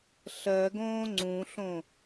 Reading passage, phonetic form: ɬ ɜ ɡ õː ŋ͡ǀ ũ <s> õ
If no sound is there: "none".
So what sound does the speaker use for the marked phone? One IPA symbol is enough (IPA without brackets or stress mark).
ɬ